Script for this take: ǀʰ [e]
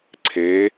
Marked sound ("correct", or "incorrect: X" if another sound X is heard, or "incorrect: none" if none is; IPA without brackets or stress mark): correct